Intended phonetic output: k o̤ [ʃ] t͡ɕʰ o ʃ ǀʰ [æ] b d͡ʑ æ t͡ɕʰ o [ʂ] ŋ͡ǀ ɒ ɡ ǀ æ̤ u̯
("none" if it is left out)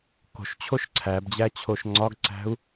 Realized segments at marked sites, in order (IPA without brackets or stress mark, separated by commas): ʃ, æ, ʃ